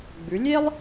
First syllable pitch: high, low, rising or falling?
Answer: rising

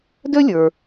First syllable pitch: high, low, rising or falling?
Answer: high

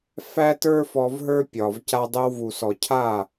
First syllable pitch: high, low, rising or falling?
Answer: high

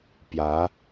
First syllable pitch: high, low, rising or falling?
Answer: rising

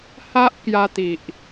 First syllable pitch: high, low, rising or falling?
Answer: high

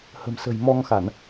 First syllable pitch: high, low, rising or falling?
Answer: low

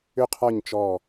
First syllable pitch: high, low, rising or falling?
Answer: falling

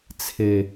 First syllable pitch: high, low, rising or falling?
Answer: low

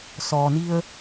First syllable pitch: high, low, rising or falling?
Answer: low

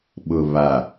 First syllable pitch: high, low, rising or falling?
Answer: low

